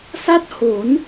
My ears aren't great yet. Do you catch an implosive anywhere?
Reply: no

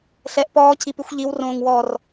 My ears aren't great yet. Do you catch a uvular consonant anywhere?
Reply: no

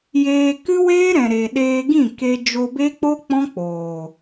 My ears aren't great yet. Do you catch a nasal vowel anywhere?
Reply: yes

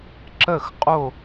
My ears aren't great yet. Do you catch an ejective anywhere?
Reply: yes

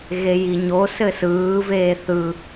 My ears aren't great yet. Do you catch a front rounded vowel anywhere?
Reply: no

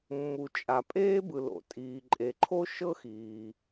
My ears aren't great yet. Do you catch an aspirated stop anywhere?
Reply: yes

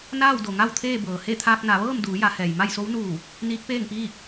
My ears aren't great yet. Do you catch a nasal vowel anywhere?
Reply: no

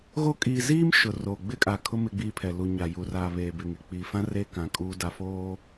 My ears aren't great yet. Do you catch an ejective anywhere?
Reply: yes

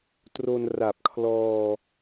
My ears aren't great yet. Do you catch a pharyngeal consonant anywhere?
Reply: no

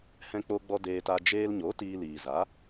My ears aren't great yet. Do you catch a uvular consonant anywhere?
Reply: no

